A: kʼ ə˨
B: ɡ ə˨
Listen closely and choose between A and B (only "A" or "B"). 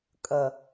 A